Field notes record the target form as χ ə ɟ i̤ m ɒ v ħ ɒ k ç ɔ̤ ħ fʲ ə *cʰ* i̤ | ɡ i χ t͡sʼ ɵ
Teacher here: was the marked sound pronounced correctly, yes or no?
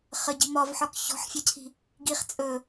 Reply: yes